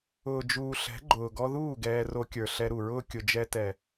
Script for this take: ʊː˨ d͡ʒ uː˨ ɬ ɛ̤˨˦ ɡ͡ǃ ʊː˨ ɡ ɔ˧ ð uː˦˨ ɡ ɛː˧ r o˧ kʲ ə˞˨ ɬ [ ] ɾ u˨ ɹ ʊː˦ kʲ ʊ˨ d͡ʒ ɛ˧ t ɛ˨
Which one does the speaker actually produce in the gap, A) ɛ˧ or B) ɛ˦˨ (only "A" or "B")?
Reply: A